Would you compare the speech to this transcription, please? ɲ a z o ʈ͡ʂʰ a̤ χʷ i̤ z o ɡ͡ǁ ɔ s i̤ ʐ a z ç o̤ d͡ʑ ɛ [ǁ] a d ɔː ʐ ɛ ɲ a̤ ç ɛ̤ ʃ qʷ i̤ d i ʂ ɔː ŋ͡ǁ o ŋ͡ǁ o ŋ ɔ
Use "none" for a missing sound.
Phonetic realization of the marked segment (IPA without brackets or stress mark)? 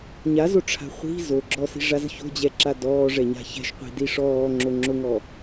ǁ